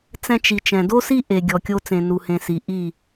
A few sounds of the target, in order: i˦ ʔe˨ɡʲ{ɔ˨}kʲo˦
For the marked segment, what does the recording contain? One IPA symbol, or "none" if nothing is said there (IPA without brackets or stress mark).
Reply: ɔ˨